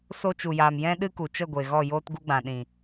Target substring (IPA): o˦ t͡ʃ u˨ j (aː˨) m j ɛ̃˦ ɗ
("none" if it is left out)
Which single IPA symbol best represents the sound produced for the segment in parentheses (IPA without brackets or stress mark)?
aː˨